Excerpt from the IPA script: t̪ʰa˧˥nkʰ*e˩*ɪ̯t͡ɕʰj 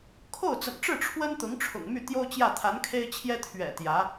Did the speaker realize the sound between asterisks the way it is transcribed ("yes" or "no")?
no